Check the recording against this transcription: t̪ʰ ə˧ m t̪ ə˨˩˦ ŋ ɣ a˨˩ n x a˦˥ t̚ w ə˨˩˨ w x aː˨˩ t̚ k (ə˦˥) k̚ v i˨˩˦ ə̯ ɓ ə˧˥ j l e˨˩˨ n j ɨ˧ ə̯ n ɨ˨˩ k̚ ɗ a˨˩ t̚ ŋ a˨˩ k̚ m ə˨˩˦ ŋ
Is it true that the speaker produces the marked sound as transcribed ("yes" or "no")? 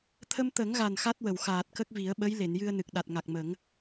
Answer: yes